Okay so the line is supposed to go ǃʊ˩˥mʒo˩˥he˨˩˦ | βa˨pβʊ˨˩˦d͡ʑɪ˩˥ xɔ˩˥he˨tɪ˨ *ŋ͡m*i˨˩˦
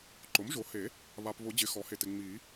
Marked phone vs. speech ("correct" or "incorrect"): correct